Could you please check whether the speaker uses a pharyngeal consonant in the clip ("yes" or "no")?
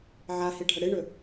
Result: yes